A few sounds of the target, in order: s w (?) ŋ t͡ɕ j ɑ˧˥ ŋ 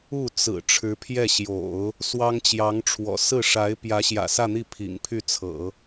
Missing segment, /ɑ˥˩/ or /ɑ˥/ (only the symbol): ɑ˥